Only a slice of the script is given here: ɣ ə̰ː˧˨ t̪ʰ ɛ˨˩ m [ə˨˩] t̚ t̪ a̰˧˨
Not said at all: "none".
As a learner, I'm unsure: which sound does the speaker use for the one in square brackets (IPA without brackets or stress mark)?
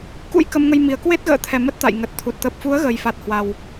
ə˦˥